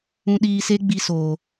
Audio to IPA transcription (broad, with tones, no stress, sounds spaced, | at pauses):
ũ˧ ɗ iː˧ s e˦ ɡ͡b i˦ s oː˨